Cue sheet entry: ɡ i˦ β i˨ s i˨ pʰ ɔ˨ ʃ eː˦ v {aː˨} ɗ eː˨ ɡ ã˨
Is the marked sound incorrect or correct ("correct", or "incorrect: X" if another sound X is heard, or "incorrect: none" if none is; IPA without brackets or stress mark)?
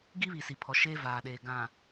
correct